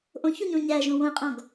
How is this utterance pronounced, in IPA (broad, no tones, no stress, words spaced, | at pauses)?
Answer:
ʔõçuɲõ ɲæʒõ wõɪ̯qʼɔ̃ɡ